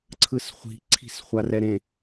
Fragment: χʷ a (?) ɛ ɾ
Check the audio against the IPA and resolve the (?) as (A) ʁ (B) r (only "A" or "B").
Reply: B